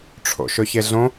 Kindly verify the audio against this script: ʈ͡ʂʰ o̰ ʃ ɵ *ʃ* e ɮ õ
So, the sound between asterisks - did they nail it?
no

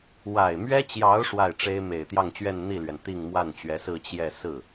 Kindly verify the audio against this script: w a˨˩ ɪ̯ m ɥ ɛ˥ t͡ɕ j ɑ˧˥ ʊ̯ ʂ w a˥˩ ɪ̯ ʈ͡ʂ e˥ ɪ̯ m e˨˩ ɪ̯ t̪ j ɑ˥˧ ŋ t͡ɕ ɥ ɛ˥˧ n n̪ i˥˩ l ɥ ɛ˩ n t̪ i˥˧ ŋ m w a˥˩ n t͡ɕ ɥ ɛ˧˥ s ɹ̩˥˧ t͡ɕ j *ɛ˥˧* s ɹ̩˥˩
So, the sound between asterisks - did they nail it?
yes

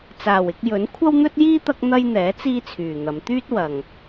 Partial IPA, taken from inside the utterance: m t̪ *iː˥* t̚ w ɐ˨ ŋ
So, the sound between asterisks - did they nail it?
no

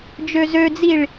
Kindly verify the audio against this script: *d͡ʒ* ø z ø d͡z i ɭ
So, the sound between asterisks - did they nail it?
yes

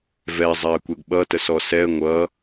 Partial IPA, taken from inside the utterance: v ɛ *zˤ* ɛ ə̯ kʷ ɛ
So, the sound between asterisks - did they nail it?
yes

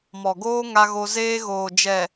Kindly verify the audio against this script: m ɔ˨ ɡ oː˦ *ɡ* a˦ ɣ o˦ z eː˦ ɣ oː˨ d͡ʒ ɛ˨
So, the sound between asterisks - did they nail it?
no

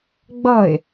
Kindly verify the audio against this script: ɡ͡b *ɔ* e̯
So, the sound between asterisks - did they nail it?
no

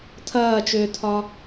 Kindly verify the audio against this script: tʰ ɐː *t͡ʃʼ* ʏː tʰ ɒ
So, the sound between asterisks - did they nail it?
no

